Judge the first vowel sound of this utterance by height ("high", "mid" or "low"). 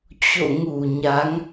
mid